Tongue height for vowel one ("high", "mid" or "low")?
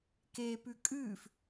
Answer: mid